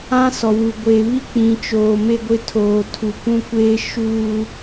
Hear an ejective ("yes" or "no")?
no